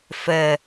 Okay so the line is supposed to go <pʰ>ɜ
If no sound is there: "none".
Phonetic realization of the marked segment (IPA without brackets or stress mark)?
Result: f